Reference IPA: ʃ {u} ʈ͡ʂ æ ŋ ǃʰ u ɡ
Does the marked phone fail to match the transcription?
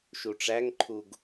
no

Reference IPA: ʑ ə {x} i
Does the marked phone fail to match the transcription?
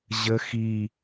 no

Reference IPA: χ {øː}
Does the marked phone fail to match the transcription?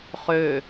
no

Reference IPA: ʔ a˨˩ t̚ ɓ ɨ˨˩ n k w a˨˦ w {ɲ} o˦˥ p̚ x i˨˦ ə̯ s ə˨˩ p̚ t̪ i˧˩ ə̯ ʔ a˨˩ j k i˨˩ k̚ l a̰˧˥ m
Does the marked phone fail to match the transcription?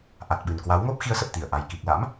yes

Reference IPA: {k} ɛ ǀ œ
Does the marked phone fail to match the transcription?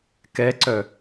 no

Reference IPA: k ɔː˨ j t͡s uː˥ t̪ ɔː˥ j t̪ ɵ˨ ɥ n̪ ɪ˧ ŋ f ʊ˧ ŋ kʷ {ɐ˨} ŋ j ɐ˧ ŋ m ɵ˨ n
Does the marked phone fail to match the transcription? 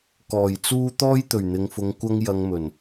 yes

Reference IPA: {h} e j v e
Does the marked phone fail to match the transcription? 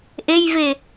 yes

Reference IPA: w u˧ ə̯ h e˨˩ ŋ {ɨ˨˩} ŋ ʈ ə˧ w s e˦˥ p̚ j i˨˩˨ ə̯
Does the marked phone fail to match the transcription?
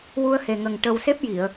yes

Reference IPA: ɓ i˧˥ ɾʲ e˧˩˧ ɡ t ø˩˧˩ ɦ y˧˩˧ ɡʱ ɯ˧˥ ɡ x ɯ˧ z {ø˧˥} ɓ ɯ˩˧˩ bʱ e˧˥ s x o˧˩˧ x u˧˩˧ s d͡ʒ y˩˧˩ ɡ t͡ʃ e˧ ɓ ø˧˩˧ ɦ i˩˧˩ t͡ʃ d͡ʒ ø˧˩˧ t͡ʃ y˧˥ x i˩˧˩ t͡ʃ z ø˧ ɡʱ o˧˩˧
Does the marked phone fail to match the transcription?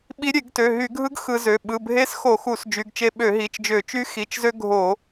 yes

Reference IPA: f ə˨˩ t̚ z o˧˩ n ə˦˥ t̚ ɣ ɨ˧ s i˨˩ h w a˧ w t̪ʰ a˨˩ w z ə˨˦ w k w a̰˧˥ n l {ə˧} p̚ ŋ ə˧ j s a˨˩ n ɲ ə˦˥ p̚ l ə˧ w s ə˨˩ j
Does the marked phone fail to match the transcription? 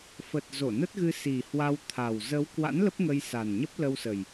yes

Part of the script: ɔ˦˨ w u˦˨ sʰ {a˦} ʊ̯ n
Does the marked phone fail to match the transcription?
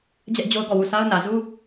no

